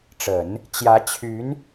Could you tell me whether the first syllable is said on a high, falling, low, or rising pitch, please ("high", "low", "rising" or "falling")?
low